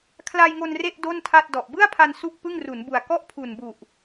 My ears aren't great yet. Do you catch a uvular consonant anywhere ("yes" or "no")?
no